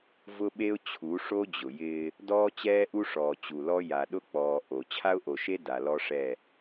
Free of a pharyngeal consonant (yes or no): yes